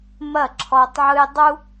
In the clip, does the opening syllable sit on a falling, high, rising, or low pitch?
falling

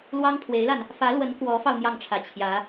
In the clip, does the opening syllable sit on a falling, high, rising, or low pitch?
high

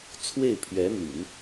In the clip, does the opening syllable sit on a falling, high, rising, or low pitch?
falling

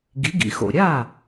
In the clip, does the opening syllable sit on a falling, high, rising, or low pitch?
rising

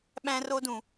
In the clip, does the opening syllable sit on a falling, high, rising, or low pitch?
high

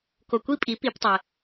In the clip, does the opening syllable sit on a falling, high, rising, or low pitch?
low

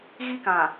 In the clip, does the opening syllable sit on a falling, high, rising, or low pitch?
high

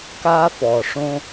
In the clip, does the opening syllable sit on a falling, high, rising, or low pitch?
high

